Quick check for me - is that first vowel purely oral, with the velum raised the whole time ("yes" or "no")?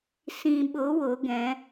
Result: no